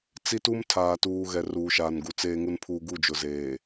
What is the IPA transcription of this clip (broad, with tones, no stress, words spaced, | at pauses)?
t͡si˦tu˦m tʰaː˨tuː˨ ɣɛ˨ruː˨ʃaː˨nɡu˨ t͡seː˨ŋu˨npʰuː˨ ɡu˦˨d͡ʒʊ˨zeː˨